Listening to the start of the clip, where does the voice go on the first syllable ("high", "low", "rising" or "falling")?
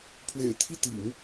low